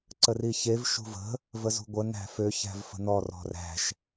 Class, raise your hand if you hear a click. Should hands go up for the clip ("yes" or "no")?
yes